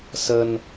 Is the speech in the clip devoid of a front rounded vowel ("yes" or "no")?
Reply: yes